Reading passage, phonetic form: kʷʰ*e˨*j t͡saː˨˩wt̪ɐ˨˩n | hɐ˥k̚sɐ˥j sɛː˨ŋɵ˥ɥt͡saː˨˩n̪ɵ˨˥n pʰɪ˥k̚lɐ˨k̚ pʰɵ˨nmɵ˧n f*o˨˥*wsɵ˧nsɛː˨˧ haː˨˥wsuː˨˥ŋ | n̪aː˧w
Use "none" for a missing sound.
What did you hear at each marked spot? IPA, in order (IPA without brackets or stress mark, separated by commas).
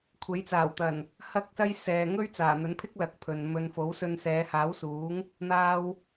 e˨˥, o˨˥